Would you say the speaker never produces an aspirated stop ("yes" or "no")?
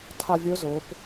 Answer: no